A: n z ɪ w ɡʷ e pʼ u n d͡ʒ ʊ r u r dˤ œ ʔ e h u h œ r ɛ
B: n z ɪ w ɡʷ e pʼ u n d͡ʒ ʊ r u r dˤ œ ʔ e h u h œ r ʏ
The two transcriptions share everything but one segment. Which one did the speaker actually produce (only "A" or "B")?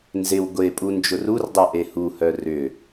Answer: B